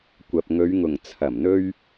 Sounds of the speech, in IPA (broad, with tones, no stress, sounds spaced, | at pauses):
kʷ ɐ˨ p̚ ŋ ɵ˨˧ ɥ ŋ ʊ˨˩ ŋ t͡sʰ ɐ˨˩ m n̪ ɵ˧ ɥ